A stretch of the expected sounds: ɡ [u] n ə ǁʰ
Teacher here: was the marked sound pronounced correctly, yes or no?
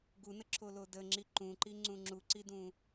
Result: yes